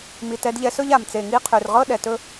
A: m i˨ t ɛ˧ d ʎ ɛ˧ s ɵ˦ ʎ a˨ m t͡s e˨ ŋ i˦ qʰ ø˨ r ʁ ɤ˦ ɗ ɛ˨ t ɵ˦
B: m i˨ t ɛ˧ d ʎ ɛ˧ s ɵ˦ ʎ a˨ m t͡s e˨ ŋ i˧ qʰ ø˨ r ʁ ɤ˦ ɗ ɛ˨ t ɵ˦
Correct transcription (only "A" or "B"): B